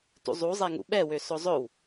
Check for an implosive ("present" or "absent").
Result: present